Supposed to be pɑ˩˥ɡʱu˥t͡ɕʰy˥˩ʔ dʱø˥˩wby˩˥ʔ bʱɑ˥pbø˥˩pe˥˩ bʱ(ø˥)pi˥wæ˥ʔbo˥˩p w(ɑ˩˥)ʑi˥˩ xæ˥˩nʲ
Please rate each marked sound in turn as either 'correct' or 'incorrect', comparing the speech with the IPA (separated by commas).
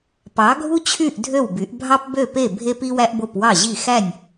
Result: incorrect, incorrect